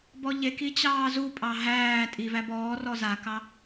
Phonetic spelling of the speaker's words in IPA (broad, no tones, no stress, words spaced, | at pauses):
bɔʎeki t͡ɕɑːzupʼɑ ɦæː tʼi væbɔːrɔ zakɑ